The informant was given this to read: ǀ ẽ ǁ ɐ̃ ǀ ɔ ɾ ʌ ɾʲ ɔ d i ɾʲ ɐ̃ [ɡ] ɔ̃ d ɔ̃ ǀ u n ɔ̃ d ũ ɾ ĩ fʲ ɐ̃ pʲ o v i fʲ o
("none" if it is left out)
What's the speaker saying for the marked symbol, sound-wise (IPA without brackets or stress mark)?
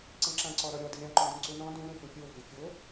ǃ